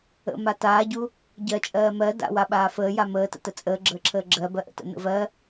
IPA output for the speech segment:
ə̰ m a t aː ɟ u | ɟ ɜ t͡ʃʼ ɜː m ɜ d a̰ w a ɓ aː f əː j a m əː t ə̰ t ə t͡sʼ əː ɡ͡ǁ əː ǁʰ əː ɡ͡ǁ ɜ b ɜ ʔ ə̰ t ə̰ n ə̰ v ɜ

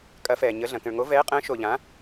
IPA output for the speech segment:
kʼ ɐ˨˥ f ɛː˨ ɲ ə˨˥ ɮ ɐ̃˨ k ə̃˨ ɭ ŋ o˨˥ v ɛː˨˥ qʼ ə̃ː˨˥ ʃ oː˨ ʎ ã˨˥

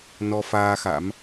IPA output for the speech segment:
n ɔ˧ f aː˧ x a̰˧˥ m

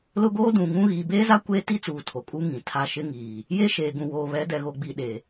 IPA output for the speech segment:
l ʊ˦ ɡ oː˦ d ũ˨ ŋ ũ˦ ɣ iː˨ b eː˦ z a˦ kʷ eː˦ t i˦ t͡s uː˨ tʰ o˨ kʼ u˦ ŋ ĩ˨ tʰ a˦ ʃ ɪ˦ ŋ iː˨ | j e˦ ʃ eː˨ ɡ ũ˨ w oː˨ β ɛ˨˦ d ɛ˨ ɣ o˨ ɡ͡b i˨ ɗ e˨

